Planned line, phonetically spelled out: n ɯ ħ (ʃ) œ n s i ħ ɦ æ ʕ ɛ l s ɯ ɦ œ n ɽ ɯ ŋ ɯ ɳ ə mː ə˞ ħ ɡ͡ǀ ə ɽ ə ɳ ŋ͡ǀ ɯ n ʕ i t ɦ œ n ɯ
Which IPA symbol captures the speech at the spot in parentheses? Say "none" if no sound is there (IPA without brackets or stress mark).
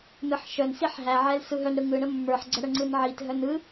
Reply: ʃ